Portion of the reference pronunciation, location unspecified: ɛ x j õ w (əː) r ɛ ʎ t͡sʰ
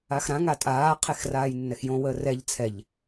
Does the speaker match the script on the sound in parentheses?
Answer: yes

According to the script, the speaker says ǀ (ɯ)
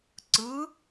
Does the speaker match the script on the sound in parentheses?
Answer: yes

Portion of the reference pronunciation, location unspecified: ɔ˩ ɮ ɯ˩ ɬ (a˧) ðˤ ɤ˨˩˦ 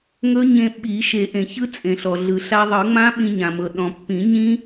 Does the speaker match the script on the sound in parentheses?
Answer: yes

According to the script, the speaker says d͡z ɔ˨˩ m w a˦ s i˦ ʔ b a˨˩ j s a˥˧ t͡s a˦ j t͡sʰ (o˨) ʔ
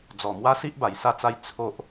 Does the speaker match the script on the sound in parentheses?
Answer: no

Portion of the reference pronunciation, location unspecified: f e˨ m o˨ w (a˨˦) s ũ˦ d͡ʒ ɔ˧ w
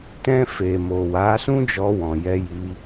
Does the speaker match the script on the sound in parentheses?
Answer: yes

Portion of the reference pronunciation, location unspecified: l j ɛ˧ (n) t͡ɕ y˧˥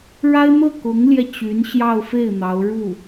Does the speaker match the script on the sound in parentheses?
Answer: no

